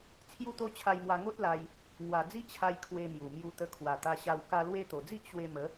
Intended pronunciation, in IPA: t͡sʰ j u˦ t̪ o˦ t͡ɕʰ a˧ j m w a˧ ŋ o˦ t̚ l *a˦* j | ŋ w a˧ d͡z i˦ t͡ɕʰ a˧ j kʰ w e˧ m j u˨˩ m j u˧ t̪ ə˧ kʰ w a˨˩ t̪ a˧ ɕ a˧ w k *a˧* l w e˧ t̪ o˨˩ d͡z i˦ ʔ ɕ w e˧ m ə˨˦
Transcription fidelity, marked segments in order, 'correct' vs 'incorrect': incorrect: a˧, correct

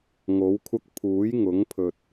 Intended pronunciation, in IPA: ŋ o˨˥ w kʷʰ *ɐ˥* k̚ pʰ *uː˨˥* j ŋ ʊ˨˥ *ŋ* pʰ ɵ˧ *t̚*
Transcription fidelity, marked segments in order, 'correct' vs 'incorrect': correct, correct, correct, correct

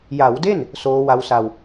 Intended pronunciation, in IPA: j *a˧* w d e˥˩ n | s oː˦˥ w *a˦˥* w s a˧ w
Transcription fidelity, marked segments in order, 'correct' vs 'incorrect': incorrect: a˩˦, correct

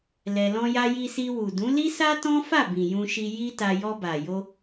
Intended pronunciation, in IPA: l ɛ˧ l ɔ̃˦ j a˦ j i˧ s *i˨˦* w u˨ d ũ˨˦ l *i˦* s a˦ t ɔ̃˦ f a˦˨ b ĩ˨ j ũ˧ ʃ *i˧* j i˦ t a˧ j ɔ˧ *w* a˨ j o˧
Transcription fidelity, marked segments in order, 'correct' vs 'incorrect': incorrect: i˧, correct, correct, incorrect: b

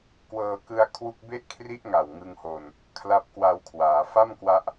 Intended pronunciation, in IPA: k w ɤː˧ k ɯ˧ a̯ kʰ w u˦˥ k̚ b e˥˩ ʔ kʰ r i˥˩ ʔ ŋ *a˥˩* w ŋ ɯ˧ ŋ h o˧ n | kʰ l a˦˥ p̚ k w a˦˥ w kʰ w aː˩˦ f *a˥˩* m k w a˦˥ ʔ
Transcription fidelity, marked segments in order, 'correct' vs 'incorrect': incorrect: a˨˩, correct

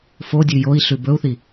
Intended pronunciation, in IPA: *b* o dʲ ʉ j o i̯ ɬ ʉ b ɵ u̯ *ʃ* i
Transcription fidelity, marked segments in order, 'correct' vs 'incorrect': incorrect: f, incorrect: θ

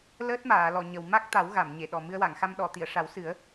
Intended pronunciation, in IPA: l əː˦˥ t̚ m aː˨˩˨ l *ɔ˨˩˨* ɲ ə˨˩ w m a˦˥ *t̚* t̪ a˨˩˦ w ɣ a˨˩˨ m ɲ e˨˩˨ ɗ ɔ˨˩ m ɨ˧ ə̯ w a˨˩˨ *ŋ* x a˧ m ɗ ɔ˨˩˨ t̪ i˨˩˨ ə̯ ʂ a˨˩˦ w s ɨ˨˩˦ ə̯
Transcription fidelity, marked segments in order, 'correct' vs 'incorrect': correct, incorrect: k̚, correct

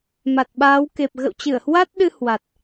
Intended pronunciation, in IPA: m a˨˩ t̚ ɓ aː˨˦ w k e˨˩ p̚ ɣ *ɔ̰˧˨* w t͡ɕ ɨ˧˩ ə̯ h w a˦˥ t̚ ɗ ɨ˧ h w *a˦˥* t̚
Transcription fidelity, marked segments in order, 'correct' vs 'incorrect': incorrect: ə̰˧˨, incorrect: a˨˩

